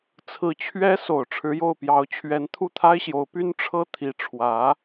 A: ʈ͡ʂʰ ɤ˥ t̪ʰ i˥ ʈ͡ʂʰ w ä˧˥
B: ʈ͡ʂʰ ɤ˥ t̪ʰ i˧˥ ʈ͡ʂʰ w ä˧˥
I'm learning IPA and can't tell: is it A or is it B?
B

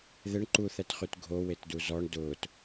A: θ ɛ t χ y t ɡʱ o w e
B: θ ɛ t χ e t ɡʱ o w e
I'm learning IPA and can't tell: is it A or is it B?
A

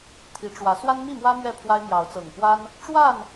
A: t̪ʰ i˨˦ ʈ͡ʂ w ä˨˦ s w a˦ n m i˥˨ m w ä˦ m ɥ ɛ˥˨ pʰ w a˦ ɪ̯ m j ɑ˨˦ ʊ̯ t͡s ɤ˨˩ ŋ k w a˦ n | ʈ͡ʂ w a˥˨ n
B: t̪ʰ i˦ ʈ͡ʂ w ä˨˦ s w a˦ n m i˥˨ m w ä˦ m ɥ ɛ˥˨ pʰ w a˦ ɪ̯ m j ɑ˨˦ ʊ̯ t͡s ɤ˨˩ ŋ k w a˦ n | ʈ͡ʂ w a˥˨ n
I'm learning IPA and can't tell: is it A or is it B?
A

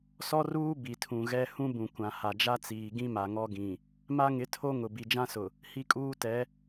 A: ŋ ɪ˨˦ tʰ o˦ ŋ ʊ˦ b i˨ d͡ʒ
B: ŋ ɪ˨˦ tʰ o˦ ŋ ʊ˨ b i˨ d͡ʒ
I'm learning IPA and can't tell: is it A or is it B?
B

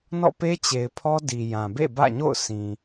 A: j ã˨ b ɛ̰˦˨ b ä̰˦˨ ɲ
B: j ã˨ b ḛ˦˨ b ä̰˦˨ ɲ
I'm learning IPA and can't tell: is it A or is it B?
B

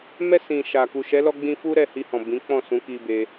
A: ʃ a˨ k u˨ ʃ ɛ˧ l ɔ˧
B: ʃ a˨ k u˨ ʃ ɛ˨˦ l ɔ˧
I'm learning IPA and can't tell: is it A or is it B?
B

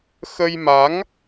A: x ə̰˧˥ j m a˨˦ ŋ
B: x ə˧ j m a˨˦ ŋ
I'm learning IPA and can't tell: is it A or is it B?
B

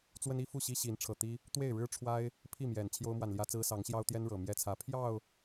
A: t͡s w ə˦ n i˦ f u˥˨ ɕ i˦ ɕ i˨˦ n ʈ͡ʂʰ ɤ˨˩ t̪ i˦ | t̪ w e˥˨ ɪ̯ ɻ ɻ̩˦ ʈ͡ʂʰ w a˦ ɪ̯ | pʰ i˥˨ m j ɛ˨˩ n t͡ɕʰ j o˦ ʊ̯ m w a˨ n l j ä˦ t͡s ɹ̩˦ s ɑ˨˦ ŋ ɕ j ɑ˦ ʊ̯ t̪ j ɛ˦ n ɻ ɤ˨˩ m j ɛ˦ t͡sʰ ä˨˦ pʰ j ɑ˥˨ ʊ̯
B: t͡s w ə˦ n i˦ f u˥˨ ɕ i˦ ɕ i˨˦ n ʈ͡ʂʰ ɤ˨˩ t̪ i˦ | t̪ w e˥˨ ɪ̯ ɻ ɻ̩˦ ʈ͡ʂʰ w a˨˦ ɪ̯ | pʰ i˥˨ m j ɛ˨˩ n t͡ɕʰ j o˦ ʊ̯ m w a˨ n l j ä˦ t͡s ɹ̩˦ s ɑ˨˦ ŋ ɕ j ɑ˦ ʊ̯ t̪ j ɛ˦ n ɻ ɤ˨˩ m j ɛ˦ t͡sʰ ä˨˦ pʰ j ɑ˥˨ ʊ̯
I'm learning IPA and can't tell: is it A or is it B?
A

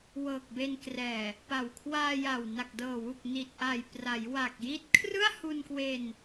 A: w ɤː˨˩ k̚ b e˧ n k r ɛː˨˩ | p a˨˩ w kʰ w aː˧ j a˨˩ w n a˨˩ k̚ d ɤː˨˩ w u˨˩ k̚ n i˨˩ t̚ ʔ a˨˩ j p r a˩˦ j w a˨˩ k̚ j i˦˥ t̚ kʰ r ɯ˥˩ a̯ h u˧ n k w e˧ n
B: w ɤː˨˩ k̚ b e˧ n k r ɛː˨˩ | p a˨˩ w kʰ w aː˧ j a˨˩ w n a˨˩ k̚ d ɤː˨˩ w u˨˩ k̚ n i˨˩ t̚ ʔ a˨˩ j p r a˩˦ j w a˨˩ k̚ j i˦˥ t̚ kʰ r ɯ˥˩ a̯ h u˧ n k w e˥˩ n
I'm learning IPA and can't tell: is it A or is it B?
A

